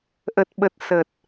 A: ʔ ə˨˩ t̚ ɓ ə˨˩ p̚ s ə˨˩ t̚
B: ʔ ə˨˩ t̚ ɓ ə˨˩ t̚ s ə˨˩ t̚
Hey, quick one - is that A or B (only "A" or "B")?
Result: B